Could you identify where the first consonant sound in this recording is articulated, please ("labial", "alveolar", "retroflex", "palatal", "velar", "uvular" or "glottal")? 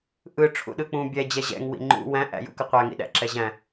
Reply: glottal